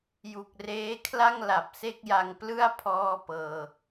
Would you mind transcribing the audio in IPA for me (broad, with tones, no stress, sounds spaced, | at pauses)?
j u˨˩ k̚ r eː˦˥ kʰ l a˥˩ ŋ l a˨˩ p̚ s e˥˩ k̚ j a˧ ŋ p l ɯ˥˩ a̯ pʰ ɔː˥˩ p ɤː˧